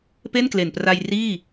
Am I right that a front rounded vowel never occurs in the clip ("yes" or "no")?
yes